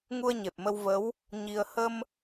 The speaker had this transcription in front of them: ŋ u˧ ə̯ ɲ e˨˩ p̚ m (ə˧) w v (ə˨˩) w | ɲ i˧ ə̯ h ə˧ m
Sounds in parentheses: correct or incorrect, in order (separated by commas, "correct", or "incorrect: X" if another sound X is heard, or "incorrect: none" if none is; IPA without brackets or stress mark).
correct, incorrect: ə˧˥